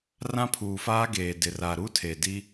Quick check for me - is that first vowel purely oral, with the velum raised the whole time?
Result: no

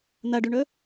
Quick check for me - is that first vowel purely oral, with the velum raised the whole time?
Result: yes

